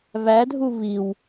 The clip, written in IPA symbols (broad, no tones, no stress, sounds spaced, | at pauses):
β æ dʱ u β i w